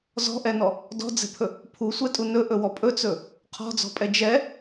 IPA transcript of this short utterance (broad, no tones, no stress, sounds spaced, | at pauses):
z ɔ̤ ʔ ɛ n ɔ | d ɔ̤ d͡z ɛ̤ pʰ ɵ | pʰ u sʷ ɛ tʼ u n ɵ ʔ ɵ w ɔ pʼ ɵ t͡s ɵ | qʰ ɔ̤ d͡z ɔ̤ pʼ ɛ d͡ʒ ɛ